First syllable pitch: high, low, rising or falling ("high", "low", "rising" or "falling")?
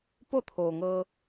falling